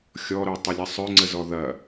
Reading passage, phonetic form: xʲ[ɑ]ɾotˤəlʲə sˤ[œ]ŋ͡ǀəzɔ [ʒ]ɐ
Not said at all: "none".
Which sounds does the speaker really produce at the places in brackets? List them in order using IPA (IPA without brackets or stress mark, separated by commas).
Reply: ɔ, œ, ð